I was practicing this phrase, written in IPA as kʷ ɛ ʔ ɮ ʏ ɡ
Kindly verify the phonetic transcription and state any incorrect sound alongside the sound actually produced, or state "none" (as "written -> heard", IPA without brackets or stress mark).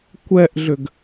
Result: none